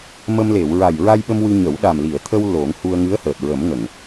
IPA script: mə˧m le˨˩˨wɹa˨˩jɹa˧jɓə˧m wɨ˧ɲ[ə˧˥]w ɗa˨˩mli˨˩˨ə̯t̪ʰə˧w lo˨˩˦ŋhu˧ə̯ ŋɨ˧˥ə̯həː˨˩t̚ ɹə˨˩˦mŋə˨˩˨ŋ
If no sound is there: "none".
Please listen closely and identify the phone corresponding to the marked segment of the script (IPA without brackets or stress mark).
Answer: ə˨˩˦